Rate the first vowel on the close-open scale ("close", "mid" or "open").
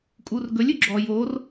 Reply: close